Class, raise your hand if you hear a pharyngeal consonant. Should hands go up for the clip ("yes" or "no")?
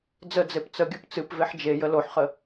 yes